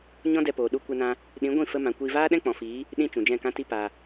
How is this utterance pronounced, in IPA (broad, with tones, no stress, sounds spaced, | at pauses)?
ɲ ɔ̃˦ d ɛ˧ p oː˨ ɗ u˧ kʷ ɛ˧ n ã˧ | ɗ ĩ˨˦ ɡʷ ĩ˦˨ f ə˦ m ã˧ kʷ iː˧ v aː˦ ɗ ɛ̃˦ k͡p ɔ̃˨ f iː˨˦ | ɗ ĩ˧ t͡ʃ ũ˨ d͡ʒ ɛ̃˦˨ k ã˦ t i˦ p a˨